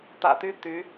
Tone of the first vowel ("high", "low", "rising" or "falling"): low